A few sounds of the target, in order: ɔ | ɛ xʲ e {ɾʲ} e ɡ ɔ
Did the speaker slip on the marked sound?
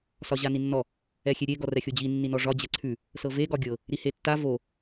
no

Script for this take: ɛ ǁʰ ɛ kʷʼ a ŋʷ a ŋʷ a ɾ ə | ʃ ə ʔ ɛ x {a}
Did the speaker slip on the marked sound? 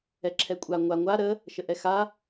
no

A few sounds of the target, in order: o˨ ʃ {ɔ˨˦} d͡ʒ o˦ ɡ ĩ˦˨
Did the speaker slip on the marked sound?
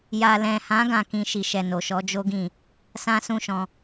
no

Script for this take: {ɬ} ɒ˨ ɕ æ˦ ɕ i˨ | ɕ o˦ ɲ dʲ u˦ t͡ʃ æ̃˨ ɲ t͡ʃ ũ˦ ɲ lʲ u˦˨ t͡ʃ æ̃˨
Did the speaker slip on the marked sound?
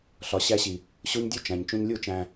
no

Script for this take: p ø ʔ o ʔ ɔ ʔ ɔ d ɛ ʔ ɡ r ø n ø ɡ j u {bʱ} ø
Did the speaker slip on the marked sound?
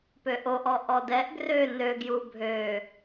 no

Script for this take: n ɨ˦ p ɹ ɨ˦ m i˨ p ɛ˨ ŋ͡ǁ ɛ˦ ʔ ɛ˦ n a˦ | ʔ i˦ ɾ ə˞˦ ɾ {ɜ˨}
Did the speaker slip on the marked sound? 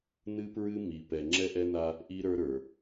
yes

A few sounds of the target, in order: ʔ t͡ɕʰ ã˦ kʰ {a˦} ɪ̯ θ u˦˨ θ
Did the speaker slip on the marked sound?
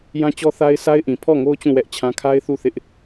no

